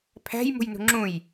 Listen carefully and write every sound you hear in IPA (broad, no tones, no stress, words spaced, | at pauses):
pʰæ̤j mṳjnṳŋ͡ǁũj